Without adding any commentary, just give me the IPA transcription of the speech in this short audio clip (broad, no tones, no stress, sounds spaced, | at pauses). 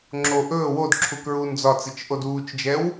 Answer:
ŋ͡ǁ o ʔ ɵː w o d ǁʰ u k ɹ uː n d͡z ɒ t͡s i t͡ʃ ʔ o d uː t͡ʃ d͡ʒ ɛ w